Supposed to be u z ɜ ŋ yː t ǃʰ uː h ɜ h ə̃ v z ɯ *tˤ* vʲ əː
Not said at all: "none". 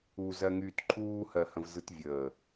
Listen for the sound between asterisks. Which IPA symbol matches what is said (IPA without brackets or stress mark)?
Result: t